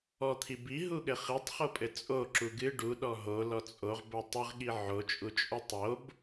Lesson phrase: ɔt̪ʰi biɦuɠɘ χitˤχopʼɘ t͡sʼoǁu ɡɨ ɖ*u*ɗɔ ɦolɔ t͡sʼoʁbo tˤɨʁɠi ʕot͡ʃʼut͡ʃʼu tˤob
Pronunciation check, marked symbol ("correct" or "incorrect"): correct